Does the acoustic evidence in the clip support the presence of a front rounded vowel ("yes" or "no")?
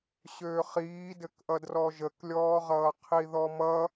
yes